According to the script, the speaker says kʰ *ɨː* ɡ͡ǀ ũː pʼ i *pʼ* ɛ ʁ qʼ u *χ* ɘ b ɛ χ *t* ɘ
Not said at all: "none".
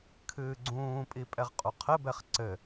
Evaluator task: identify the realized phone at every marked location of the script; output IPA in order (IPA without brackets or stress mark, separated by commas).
ɨː, pʼ, qʰ, ǀ